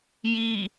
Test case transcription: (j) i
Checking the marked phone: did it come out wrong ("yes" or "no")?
no